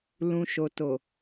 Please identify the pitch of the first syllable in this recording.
low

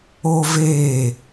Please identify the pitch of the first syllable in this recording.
high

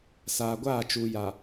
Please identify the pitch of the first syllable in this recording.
low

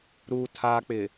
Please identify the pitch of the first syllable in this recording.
low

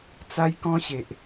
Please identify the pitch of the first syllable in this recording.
high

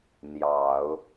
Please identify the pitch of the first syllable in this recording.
low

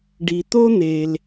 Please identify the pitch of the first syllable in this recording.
low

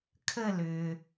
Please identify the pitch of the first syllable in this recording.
falling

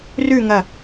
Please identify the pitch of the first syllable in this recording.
falling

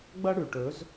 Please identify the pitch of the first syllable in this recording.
high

